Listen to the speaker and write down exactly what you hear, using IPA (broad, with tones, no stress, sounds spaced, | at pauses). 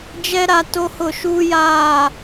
d͡ʒ ɛ˦ ɾ a˦ t o˦ h ʊ˦˨ ʃ uː˦ j aː˦˨